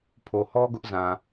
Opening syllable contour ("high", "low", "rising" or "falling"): low